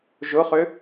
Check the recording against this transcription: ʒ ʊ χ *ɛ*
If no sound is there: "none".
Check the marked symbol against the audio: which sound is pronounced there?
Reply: ʏ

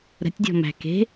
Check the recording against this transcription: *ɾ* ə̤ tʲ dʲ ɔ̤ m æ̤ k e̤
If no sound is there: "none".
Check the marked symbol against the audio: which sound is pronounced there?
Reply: ɾ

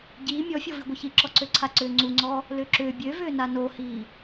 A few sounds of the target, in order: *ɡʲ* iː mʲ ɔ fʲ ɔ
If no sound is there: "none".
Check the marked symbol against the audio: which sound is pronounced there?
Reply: ɟ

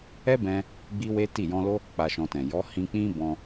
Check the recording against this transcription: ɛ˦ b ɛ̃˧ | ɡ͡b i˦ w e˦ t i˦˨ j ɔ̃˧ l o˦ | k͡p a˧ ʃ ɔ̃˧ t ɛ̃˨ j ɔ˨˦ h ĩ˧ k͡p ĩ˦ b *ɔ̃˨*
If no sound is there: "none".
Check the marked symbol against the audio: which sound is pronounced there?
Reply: ɔ̃˧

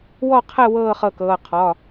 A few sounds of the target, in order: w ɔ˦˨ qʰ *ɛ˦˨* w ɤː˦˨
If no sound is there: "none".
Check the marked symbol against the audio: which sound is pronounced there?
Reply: ɛ˦˨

